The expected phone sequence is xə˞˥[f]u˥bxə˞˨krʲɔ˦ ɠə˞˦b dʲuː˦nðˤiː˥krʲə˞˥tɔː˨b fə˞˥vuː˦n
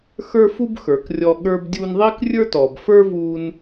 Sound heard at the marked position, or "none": f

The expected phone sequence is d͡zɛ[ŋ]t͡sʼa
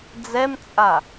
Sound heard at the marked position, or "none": m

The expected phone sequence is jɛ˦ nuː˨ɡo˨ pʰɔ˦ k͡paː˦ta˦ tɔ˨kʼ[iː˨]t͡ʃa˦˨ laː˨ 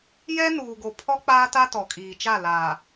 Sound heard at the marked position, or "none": iː˨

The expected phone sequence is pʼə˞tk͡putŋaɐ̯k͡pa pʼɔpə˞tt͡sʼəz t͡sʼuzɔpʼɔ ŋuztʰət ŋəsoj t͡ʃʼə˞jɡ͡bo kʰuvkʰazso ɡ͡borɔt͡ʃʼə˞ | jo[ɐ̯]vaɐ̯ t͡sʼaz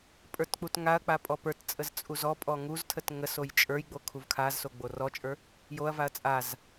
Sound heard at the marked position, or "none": ɐ̯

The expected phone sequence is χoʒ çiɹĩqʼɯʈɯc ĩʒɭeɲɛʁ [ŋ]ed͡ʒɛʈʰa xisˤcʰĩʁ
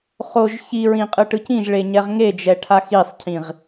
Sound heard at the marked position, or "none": ŋ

